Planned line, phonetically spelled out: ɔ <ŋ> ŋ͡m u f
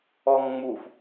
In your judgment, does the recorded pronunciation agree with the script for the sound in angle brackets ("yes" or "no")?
yes